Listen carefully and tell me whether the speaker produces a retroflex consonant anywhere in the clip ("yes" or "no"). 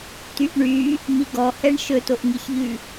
yes